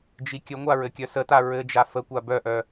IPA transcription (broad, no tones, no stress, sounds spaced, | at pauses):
d͡ʒ i kʲ ə ŋʷ a ɹ ɘ kʲ œ s ə t a ɹ ɘ d͡ʒ a f ə kʷ a b œ ʔ œ